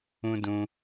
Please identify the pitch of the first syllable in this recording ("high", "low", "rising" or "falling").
high